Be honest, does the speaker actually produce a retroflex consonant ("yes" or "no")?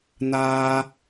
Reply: no